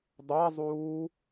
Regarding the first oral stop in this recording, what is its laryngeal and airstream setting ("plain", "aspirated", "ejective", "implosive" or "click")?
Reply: plain